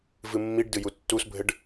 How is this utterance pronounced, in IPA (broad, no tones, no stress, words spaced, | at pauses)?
vɨmːiɖdɨju tːusbʱɘɖ